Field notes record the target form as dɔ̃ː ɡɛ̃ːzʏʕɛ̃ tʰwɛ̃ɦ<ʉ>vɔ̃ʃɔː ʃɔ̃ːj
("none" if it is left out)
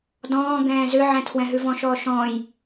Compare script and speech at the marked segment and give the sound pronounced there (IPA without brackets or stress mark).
ʉ